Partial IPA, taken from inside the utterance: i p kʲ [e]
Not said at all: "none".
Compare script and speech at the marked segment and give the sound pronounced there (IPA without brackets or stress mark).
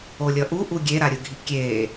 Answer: eː